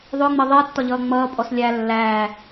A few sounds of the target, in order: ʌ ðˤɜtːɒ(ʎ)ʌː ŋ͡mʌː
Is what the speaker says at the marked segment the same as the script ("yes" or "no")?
yes